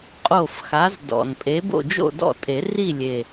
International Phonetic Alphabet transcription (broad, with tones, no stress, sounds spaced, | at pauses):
qʼ o˥˨ f x a˨˦ z d ɔ̰˨˩ n pʼ e˨˦ b o̰˥˨ d͡ʒ o̰˥˨ d ɔ̰˥˨ tʼ e˨˩˦ r i˥˨ lʲ e˨˩